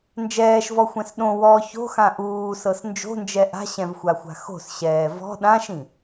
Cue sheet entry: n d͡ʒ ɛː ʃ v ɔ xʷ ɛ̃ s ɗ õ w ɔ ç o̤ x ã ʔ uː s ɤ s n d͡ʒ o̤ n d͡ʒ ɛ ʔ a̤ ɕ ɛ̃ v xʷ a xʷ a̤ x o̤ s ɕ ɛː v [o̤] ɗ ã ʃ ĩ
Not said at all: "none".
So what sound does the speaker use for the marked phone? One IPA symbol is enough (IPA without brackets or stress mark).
ɔ̤